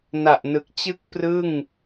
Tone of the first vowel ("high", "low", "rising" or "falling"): low